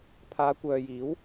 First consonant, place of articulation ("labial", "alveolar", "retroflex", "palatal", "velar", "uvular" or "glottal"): labial